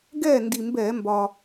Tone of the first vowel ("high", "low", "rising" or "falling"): falling